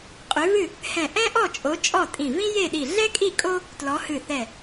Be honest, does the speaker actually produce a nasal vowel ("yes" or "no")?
yes